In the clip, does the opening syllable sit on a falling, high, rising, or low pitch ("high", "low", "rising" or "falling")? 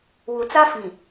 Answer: low